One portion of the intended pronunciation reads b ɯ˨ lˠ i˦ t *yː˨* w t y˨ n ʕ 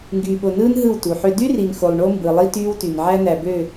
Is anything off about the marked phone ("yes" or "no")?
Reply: yes